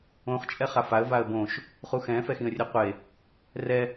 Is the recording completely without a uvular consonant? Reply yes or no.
no